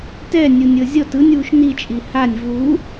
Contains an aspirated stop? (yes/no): no